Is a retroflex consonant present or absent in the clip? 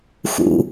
absent